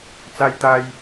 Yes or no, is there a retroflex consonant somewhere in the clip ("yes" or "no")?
no